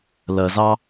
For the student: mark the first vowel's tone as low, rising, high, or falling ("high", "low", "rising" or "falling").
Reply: low